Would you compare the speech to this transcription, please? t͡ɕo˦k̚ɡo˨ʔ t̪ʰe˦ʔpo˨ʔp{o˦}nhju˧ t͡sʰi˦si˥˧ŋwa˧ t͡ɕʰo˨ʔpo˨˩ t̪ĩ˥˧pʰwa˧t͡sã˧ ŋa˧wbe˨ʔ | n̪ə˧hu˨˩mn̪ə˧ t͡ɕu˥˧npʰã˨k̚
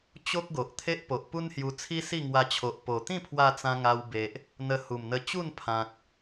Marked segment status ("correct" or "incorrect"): incorrect